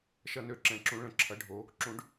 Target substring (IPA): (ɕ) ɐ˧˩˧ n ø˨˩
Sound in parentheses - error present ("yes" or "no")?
yes